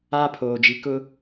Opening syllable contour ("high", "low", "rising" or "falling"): high